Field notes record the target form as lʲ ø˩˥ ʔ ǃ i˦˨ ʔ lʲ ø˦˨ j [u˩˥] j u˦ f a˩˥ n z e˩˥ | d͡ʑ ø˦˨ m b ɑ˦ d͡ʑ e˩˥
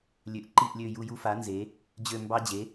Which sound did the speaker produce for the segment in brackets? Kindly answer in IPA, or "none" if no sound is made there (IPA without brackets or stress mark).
u˦˨